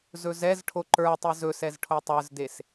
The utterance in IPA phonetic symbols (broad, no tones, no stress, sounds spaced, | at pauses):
z ɵ z ɛ z ʈʰ o ǃ ə˞ tˤ ɨ z ɵ s ɛ z ʈʰ o tˤ ə˞ z d e s